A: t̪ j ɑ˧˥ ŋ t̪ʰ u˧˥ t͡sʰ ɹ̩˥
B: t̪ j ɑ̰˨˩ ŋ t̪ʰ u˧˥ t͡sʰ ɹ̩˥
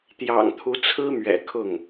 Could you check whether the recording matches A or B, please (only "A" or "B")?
B